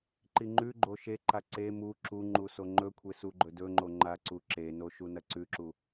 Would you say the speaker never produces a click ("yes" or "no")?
no